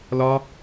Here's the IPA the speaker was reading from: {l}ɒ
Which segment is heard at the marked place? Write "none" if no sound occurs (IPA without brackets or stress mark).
l